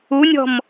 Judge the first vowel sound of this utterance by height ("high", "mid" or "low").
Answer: high